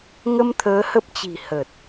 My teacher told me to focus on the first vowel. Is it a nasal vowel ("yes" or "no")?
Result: no